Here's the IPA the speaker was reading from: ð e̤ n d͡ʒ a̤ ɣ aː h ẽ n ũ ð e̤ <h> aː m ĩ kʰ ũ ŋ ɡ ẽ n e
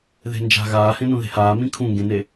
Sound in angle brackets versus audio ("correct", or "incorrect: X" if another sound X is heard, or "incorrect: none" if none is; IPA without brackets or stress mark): correct